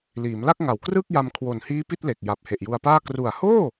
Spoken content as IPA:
l iː˩˦ m l a˥˩ k̚ ŋ a˨˩ w k r ɯ˥˩ k̚ j a˧ m kʰ w o˨˩ n h iː˦˥ p i˥˩ t̚ l e˨˩ k̚ j a˨˩ p̚ h e˨˩ ʔ j u˧ a̯ p aː˥˩ k r u˨˩ a̯ h oː˥˩

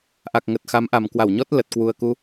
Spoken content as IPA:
ʔ a˨˩ k̚ ŋ ə˨˩ t̚ x a˨˦ m ʔ a˨˩ m k w a˧˩ w ɲ ɔ˦˥ t̚ l ə˨˩ t̚ k w u˨˩ ə̯ k u˧

